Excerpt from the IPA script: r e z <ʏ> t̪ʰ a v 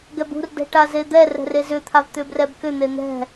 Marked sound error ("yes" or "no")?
no